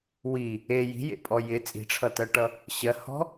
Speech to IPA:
w i | e j i̤ j ḛ pʼ ɔ j ɪ t͡sʼ i̤ ʈ͡ʂʰ ʌ t ɜ ʈ ʌ | ɕ ɜ h ɔ̤

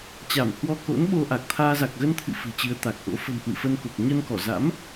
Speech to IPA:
t͡ɕ a˧˩ m h w ɔ˧ k o̰˧˥ n ɓ o˧ ʔ a˨˩ k̚ t̪ʰ aː˧ z a˨˩ k̚ ɣ ə˧ n t̪ʰ ɨ̰˧˨ f ɨ̤˨˩ t͡ɕ ɨ˨˦ ə̯ t̪ a˨˩ k̚ ʔ o̰˧˥ f ə̤˨˩ m h w ɨ̰˧˨ f ə˧ n k o˨˩ k̚ ɲ ə˧ n k ɔ˧˩ z a̰˧˥ m

